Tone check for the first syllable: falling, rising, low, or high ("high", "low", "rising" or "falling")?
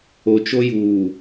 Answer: low